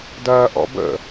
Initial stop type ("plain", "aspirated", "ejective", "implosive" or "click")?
plain